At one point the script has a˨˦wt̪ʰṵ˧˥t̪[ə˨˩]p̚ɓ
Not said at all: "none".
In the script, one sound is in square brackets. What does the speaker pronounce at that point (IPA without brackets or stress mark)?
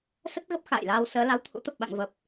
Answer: ə˨˩